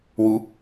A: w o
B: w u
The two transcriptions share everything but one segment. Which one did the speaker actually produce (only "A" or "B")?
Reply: B